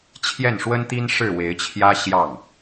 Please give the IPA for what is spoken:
t͡ɕʰjɛ˥˩nʂwə˥nt̪i˥n ʂɻ̩˥˩we˧˥ɪ̯t͡ɕʰjä˥ ɕjɑ˥˩ŋ

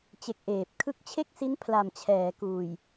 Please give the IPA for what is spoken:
t͡ɕe˦˥k̚ʔeː˨˩p̚ kʰɯ˦˥k̚t͡ɕʰe˥˩k̚si˦˥n pʰla˨˩mt͡ɕʰɛː˩˦kuː˨˩j

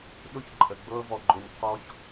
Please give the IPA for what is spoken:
ɗʊ˧çǃʼə˨ ɡ͡bɤ˧vɔ˨ɡ͡ǃʊ˨nʲ qɔ˧ç

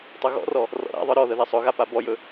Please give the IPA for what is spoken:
tˤɵɣɔ̰rɔ | rɔ̰ɾa̰ðˤə˞ ɾɔðə ðasˤɵɣa pabɔjɵ

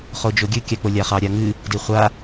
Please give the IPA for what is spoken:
χod͡ʒoɡʲɨ kʲɑk͡polʲaχɑ ɾʲaŋɨ | diχʷa

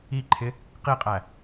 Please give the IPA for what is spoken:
iǃʰɪ | qiqʼæ

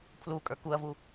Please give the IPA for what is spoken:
pʰlu kʼə˞kuɐ̯vu

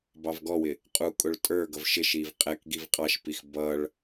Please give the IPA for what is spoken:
bɑvɡɔwɪ | qʼu kʼʊɭtʼə˞ɡʌv ʃɪʃiv qʼɛkɡiv qʼɑʃpix bʌɭ

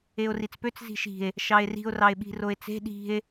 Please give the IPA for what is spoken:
eo̯rit͡spøt͡s zi̤ʃi̤e̯ | ʃɑe̯ri̤o̯ rɑe̯ɓi̤roe̯t͡se̤ ɗi̤e̯

